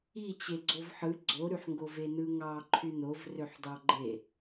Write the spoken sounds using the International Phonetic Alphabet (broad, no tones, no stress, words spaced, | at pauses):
it͡ɕeɡ͡ǀov ħɯ ɡ͡ǀoɾyħŋɡo venɯŋɑ ǃʰynovrøħ dɑɡ͡ǃe